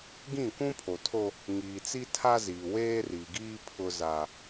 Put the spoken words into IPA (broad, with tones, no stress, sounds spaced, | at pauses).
ɡ ĩ˦˨ kʷ ũ˦ pʰ o˨ tʰ o˦ | ŋ iː˨ t͡s i˦ tʰ a˦ z iː˨ w eː˦ r i˨ ɡ iː˦ pʰ ʊ˦ z a˦